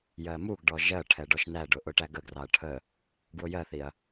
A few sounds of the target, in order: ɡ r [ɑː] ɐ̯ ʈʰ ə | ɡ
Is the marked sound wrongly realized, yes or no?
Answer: yes